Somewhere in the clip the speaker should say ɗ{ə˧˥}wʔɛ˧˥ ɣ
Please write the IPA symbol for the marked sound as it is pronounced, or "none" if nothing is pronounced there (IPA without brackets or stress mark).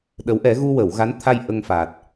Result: ə˧˥